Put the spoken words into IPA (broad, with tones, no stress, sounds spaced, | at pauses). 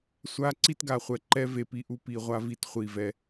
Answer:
sʷ a˦ ǀ i˦ t ɡ a˨ χʷ ɛ˨ ǃ ɛ˦ v e˨ p i˦ ʔ u˦ p i˨ ʁʷ a˦ v i˨ t χʷ i˦˨ v ɛ˦